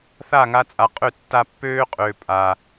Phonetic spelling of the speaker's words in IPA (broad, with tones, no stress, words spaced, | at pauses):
θa˦˨ŋa˧t͡sʼa˨qʼø˦˨ tːa˧ pːøː˦qʼøː˨ pʼaː˨